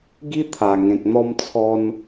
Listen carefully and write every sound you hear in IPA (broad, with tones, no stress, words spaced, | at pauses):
ɡi˦ t̪ʰa˨˩ŋẽ˨k̚ n̪ɔ˦mt͡sʰɔ˦n